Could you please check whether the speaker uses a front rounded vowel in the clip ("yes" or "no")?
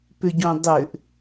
yes